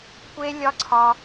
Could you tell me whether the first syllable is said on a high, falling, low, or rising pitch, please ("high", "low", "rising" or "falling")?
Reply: high